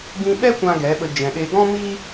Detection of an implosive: present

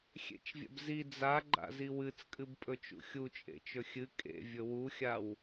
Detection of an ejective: present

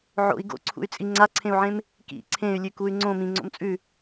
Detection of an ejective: present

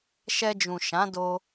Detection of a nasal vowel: present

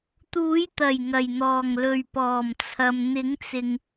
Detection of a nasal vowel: absent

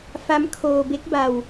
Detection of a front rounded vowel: absent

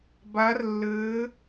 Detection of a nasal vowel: absent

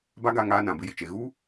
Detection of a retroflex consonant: absent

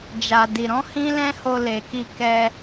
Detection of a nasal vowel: present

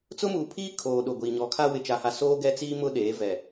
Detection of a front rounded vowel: absent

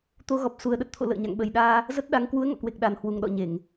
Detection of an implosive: present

